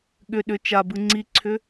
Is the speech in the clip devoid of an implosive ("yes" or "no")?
no